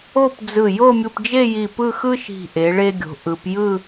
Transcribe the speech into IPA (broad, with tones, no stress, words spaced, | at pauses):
o˥˧pd͡zɯ˧˩ jo˥˧mʲu˧pd͡ʒe˥˧ji˧˩ pɯ˥˧xɯ˥ʃi̤˧˩ ʔe˩˧ɭe˧ɡʲo̤˩˧ ʔɯ˩˧pjɯ˥˧